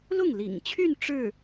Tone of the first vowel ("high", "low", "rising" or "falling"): falling